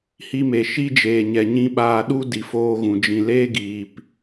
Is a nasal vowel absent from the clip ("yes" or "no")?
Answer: no